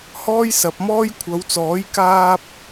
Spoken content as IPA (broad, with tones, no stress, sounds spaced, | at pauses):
h ɔː˥ j s ɐ˨ p̚ m ɔː˥ j kʷʰ ɐ˨˧ w t͡s ɔː˨˥ j k aː˧ p̚